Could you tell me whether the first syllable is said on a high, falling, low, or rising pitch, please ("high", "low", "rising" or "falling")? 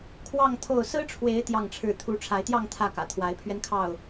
falling